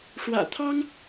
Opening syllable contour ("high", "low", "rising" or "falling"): low